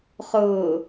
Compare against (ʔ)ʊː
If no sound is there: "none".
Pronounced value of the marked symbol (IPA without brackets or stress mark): χ